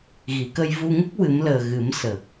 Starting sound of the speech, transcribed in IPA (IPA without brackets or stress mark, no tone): ɣ